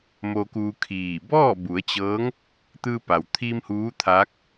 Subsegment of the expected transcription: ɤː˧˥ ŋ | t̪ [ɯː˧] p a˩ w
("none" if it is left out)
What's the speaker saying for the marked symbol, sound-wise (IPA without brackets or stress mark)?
ɯː˧